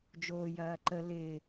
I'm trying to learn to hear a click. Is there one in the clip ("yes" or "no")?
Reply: yes